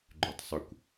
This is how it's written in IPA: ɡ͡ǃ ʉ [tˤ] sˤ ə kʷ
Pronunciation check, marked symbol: correct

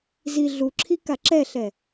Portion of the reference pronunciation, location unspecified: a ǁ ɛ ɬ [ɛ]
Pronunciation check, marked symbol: correct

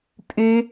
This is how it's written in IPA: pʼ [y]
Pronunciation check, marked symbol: correct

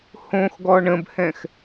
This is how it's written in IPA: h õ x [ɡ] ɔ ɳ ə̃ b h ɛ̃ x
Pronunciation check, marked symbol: correct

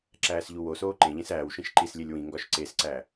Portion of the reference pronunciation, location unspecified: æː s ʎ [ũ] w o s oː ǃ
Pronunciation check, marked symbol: incorrect: u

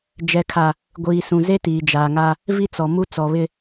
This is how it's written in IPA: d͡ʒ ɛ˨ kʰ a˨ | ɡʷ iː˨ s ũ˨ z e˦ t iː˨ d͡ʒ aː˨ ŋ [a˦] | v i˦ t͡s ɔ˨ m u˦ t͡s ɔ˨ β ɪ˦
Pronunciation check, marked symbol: correct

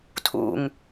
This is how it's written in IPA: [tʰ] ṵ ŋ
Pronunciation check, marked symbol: correct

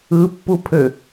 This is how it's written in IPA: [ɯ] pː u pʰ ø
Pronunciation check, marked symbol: correct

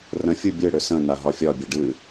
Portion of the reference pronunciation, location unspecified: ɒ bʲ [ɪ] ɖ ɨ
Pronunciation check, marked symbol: incorrect: ɛ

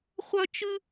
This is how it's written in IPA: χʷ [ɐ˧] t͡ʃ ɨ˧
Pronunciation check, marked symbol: correct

